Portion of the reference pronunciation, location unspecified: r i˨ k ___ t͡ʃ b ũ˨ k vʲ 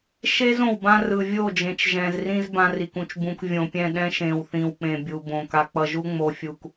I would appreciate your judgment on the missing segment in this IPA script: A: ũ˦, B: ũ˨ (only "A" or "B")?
B